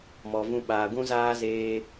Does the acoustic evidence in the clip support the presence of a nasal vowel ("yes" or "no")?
yes